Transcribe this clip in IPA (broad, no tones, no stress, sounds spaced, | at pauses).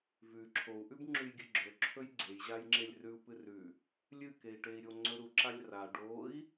v ʉ ǁʰ o u̯ ʔ ʉ b ŋ͡ǁ ʉ j ɡʲ ɨ ɡ͡ǁ ɵ ǁʰ ɵ j ɡ͡ǀ e j ʑ a j ŋ͡ǁ e lʲ r ʉ u̯ p ɨ r ʉ | lʲ ɨ k e i̯ ʈ e i̯ ɾʲ o ŋ͡ǀ ɵ ɾ u ǁ a lʲ r a ɖ o i̯